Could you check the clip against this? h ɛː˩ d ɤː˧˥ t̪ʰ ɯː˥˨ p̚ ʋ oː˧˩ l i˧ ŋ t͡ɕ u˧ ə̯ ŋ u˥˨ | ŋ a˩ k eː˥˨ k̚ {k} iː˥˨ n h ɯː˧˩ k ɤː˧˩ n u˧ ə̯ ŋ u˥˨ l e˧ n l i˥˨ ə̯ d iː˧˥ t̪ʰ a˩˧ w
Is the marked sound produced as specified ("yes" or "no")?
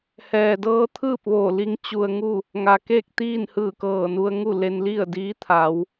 no